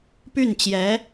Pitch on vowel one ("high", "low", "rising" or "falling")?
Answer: falling